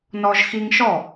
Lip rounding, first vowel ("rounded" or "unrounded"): rounded